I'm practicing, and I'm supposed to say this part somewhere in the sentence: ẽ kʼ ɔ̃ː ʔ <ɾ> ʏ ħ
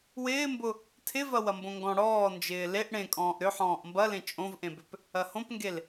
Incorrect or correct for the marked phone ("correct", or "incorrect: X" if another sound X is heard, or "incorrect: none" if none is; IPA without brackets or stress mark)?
correct